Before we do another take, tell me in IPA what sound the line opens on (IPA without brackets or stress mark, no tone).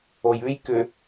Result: o